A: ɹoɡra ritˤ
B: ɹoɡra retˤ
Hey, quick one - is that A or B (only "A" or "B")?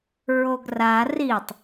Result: A